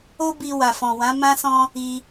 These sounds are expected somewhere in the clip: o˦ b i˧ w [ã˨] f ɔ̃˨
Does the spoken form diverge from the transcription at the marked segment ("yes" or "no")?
yes